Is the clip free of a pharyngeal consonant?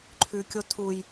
yes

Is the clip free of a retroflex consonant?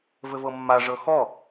no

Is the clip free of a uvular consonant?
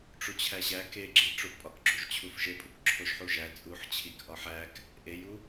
yes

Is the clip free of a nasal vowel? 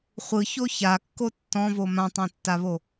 no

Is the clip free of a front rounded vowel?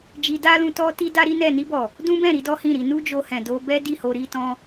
yes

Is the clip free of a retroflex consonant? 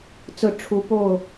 no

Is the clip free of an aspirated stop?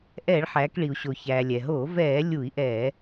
yes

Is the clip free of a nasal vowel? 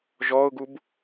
yes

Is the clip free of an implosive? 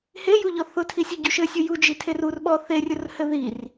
no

